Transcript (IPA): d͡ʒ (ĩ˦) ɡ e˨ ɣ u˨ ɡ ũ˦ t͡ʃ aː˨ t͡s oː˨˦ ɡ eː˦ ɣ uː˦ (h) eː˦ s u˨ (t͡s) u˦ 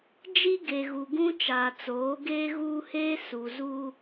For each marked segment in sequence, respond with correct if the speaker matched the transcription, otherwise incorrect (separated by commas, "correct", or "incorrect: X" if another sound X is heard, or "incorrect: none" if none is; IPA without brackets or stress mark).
incorrect: i˦, correct, incorrect: z